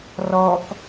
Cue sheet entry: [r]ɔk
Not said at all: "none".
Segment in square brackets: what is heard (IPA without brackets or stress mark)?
r